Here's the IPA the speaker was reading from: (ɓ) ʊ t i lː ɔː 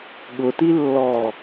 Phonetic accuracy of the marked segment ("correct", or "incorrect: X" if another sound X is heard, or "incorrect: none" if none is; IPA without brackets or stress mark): incorrect: ɠ